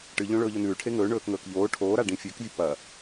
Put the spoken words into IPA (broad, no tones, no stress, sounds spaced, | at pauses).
ʈ ɨ ʎ õ ɭ ɵː ʎ ɵ n ʉː ʈʰ e ŋ ɵː ɳ ɵː k ŋ ɵː k ʎ oː ʈʰ oː ɾ a ɖ ĩ fʲ ʉ k vʲ ɵ p ɐ